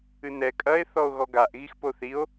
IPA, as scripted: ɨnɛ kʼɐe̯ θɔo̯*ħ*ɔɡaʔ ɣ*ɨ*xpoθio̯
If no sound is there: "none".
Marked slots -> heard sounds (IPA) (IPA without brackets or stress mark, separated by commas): ɣ, i